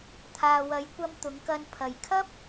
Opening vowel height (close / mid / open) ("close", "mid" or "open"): open